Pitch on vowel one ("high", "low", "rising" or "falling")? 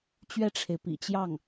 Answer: falling